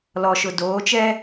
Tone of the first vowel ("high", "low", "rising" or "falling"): low